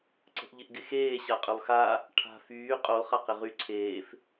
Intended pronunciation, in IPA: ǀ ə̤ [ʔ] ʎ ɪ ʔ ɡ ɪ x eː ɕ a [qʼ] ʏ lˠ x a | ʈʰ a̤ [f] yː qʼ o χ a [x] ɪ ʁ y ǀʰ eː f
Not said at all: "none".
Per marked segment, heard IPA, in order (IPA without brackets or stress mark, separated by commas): ʔ, qʼ, f, q